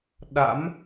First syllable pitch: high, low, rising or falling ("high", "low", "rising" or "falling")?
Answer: rising